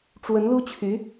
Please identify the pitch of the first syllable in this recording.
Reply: rising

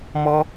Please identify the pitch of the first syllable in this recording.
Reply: high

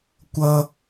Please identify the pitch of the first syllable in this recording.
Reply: high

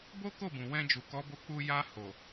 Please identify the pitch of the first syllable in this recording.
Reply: high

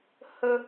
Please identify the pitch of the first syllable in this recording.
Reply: high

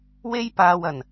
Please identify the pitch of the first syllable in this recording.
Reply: high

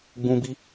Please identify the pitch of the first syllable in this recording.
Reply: high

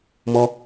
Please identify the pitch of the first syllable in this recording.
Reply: high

